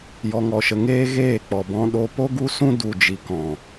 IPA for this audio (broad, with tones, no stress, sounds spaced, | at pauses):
j ɔ˧ ŋ ɔ˧ ʃ ə˧ ŋ eː˦ ɣ eː˦˨ k͡p ɔ˨ b ɔ̃˧ ɗ o˧ p o˦ ɡ u˦ s ũ˦ d u˨ d͡ʒ i˨ k ɔ̃˨